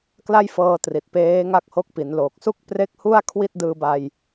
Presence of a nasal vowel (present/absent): absent